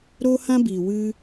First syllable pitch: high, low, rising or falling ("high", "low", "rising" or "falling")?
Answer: high